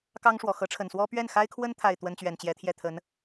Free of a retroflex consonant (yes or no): no